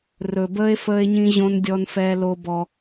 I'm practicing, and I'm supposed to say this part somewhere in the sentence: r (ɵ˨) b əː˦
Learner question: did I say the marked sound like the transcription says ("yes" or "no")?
yes